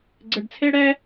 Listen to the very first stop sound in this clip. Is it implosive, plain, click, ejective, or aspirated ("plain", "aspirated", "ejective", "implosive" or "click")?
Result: click